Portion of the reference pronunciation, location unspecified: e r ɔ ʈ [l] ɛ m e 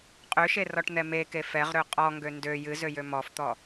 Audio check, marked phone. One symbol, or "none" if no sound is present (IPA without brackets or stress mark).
n̪